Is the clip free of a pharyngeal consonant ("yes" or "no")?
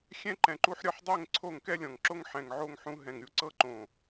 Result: no